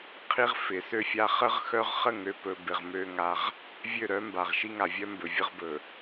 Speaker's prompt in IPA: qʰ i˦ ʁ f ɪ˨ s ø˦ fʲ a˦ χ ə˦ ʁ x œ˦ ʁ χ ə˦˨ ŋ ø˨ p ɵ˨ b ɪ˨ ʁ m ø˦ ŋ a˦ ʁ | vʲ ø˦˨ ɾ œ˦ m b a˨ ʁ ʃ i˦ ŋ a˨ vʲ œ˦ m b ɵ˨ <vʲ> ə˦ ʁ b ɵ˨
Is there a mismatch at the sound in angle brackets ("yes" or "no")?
no